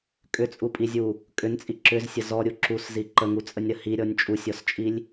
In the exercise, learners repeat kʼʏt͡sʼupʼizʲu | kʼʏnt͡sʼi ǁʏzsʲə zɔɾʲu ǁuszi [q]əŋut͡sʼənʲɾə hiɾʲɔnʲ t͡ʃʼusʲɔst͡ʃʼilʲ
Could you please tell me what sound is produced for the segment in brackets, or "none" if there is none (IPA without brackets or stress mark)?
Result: ǃ